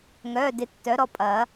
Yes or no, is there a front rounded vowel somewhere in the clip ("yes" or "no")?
yes